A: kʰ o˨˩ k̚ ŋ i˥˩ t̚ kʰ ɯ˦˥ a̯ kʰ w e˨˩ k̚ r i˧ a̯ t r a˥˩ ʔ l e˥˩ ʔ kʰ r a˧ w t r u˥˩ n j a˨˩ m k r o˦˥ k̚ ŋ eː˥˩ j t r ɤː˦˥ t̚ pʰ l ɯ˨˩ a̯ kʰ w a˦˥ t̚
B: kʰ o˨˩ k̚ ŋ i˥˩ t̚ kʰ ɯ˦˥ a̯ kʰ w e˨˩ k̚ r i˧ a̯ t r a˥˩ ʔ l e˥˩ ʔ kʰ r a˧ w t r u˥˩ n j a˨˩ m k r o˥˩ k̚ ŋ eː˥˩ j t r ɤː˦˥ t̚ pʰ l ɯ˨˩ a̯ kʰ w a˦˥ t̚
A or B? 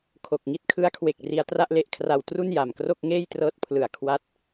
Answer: B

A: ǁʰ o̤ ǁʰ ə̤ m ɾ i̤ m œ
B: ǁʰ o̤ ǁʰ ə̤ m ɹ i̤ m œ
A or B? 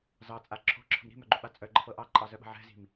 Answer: A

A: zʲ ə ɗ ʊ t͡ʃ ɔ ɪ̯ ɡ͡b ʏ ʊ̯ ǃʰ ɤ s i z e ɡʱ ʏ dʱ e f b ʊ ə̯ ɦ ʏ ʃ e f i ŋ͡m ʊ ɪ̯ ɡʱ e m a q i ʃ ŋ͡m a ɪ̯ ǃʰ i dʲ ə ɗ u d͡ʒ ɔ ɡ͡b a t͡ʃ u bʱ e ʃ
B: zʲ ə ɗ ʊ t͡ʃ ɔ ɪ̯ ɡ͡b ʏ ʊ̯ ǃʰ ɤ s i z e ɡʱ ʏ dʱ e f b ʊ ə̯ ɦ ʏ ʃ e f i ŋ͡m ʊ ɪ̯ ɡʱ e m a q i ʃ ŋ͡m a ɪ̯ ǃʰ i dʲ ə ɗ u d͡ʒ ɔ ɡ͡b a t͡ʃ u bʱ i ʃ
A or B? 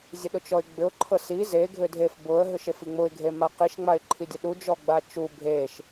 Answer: A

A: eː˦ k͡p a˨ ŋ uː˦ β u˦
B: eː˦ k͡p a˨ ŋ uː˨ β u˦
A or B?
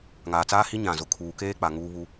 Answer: A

